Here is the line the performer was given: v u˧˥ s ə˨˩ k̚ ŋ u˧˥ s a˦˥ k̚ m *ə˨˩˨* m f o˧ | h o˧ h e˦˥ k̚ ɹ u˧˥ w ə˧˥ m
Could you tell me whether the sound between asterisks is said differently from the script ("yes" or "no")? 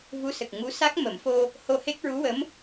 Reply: no